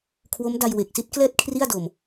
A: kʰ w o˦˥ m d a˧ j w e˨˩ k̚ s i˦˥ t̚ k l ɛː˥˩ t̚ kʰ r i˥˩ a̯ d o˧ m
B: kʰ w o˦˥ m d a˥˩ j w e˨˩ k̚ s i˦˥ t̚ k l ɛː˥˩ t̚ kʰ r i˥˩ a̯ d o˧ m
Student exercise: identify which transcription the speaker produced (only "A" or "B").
A